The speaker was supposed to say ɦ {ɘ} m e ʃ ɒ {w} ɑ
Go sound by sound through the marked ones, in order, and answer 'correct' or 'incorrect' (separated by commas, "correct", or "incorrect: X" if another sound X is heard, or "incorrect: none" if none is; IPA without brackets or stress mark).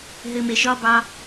correct, incorrect: b